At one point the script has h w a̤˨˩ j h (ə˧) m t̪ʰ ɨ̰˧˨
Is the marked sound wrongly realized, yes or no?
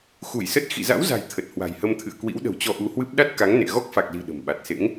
no